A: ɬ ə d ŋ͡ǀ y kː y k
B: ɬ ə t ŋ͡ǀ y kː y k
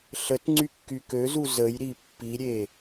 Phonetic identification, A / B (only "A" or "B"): B